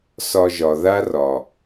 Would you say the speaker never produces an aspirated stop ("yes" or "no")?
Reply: yes